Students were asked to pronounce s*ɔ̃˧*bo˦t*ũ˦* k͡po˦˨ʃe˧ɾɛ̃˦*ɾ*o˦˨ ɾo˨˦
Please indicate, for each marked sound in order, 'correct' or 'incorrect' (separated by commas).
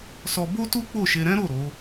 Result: incorrect, incorrect, correct